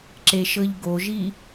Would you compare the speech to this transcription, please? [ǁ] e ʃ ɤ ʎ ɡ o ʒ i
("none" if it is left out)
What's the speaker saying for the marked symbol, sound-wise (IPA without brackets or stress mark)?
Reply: ǁ